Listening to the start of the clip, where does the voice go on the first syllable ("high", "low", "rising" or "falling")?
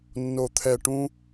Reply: low